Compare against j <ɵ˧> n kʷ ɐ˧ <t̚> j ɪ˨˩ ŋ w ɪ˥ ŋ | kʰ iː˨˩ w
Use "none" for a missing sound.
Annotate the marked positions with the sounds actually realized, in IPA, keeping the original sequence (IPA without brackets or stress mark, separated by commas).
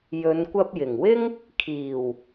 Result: ɵ˨˧, p̚